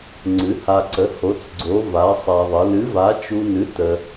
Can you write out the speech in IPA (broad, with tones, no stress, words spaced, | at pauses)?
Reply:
ŋ͡ǀɨ˨˥ha˧ǀə˨˥ ho˨˥t͡sɡ͡ǀo˨˥ va˨˥ sˤa˧ðˤə˨˥ lɨ˨˥va˨˥t͡ʃu˧nɨ˨˥ tə˧